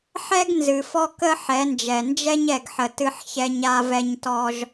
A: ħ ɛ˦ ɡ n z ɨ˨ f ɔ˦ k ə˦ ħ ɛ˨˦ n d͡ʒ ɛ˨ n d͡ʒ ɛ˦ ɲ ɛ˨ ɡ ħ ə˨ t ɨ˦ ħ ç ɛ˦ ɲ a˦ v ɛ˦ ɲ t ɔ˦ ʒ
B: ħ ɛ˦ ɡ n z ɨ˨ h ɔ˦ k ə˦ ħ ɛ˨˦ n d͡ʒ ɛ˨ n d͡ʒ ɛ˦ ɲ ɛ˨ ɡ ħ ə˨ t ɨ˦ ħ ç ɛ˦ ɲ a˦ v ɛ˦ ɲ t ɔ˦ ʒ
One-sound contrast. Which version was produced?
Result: A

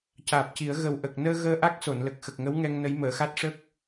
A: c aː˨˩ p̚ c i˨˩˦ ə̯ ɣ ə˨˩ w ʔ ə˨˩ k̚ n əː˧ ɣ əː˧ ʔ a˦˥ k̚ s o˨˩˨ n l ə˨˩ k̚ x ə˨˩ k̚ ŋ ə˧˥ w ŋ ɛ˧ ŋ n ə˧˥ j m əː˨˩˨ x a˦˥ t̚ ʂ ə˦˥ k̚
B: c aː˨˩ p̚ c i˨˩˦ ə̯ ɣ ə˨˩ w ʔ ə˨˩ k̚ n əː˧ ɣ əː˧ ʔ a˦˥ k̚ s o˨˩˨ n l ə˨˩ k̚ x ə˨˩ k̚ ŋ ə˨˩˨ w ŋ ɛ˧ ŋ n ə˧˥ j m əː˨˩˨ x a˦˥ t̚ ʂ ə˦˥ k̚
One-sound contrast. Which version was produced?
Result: A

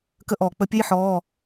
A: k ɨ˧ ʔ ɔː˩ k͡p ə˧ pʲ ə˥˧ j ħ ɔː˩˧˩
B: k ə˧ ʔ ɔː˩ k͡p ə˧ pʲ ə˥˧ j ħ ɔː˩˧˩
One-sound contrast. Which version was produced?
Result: B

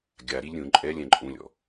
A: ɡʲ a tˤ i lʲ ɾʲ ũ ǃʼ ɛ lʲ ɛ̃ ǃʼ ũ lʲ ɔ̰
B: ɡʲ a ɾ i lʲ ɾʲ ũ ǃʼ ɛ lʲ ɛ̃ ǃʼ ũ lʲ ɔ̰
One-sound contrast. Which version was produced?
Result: B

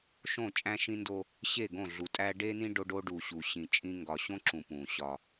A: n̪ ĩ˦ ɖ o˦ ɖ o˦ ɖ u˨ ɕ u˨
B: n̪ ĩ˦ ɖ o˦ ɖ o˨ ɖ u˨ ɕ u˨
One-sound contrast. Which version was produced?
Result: A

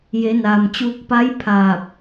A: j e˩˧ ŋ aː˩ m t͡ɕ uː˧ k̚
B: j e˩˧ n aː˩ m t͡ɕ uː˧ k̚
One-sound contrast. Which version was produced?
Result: B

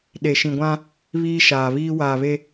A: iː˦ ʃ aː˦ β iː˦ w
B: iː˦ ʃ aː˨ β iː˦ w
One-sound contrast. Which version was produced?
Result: B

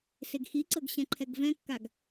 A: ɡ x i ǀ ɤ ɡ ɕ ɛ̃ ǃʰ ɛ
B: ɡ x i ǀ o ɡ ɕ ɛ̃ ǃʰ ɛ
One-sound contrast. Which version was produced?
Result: A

